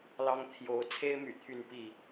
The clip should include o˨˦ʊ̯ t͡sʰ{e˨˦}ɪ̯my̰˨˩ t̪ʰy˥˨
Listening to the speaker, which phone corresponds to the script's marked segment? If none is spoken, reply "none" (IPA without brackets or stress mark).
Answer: e˦